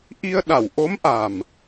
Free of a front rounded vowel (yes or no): yes